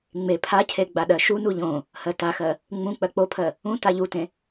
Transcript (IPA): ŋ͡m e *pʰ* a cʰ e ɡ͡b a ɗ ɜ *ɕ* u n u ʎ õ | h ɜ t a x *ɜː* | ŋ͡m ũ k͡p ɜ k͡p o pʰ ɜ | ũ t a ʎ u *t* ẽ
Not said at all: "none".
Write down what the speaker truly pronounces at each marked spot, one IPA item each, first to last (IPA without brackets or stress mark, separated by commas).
pʰ, ʃ, ɜ, t